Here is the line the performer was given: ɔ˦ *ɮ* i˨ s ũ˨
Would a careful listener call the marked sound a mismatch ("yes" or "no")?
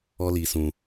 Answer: yes